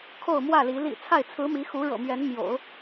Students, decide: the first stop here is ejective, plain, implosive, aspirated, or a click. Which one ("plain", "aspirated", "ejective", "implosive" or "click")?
aspirated